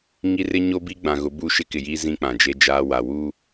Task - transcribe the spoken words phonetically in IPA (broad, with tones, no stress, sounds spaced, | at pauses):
ŋ i˦ r ɪ˦ ɲ o˦ b i˦ ɡ͡b ã˨ ɣ ʊ˨˦ b uː˦˨ ʃ ɪ˦ k ɪ˨ j iː˦ z ĩ˦ k͡p ã˨ d͡ʒ e˦ d͡ʒ aː˦ w a˨ w uː˦